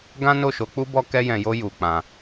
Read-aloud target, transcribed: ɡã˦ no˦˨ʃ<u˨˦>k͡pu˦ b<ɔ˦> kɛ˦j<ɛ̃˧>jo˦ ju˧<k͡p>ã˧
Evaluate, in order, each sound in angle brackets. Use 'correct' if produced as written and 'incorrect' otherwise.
incorrect: o˨˦, correct, correct, correct

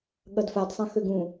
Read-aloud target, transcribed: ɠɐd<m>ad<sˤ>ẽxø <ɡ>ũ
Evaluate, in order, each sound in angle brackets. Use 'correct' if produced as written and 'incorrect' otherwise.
incorrect: f, correct, correct

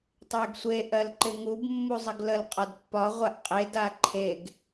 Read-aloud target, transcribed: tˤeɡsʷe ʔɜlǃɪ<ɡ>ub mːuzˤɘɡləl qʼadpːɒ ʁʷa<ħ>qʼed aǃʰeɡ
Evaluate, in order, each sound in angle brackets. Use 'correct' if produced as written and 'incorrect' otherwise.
incorrect: ŋ, incorrect: ʔ

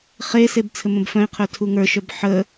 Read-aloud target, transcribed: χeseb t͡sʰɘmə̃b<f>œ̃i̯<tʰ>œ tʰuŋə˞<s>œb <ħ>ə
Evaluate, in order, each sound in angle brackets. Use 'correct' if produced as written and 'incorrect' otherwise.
correct, incorrect: qʰ, incorrect: ʃ, correct

